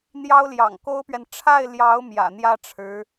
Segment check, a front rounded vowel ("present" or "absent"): absent